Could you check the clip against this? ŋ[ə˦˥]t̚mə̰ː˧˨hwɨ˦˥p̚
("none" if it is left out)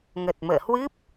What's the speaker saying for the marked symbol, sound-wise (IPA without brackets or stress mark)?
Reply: ə˨˩